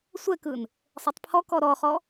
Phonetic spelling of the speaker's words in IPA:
sʷ ɛ k ɯ n | sˤ ɛ tˤ pʰ ɔ k ɔ ɾ ɔ χ ɔ

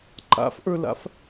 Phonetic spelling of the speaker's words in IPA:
ǃ a̰ f ʔ ə˞ l a̰ f

